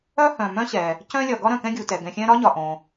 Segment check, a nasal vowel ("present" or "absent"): present